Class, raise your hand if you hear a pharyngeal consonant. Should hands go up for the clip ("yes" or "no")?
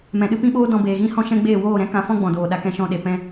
no